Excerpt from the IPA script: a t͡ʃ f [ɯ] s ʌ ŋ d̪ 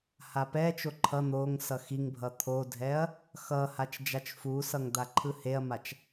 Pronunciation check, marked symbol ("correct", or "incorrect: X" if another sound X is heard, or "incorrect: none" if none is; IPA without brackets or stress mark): incorrect: u